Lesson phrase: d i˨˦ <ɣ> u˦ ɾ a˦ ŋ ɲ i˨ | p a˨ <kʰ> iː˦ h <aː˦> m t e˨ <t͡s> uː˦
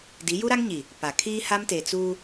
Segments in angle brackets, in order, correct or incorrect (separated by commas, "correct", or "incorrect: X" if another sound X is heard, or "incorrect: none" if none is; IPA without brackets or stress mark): incorrect: j, correct, incorrect: a˦, correct